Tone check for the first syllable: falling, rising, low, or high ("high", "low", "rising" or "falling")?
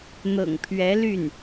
low